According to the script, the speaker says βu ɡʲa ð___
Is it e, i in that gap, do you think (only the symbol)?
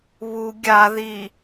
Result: i